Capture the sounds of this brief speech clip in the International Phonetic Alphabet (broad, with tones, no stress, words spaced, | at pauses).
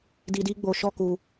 di˧di˦ ɡ͡bo˧ʃɔ˦ ku˧